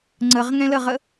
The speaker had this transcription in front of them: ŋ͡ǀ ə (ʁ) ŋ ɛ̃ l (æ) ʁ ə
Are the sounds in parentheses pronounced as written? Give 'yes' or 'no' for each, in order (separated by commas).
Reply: yes, no